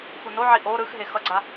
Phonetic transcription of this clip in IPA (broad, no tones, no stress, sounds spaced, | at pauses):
x u n o ʕ i ʔ o ɾ ɯ x ɦ e x ʌ ɡ͡ǀ a